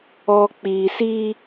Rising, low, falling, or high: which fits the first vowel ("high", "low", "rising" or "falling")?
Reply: low